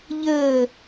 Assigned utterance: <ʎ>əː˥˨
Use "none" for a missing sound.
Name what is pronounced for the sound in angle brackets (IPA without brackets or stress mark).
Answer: ʎ